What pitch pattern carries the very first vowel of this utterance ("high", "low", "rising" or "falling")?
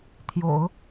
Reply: low